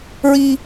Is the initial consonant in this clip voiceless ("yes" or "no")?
no